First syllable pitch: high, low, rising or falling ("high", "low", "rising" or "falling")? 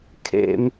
high